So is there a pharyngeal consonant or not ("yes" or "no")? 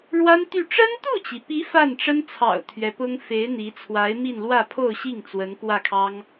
no